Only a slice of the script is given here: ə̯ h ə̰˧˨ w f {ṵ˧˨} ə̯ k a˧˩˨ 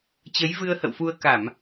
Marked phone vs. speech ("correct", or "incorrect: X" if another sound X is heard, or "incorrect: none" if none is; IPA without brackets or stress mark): incorrect: u˧